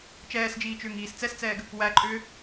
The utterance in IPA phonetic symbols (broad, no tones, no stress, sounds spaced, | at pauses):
t͡ʃ ɛː s d͡ʒ iː t͡ʃ ʏː ŋ iː s t͡s ɛ s t͡s ɛː ɡ | w æ ǃʼ ʏː